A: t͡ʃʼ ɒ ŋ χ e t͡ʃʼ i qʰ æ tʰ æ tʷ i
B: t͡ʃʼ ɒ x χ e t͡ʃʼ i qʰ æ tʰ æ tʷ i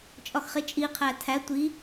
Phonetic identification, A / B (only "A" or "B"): B